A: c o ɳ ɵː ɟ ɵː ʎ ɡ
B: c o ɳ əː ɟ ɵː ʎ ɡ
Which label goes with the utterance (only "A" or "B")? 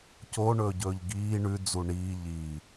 A